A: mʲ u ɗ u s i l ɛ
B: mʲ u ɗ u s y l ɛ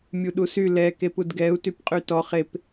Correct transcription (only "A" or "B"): B